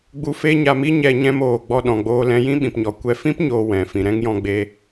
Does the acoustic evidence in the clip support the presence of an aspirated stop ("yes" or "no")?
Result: no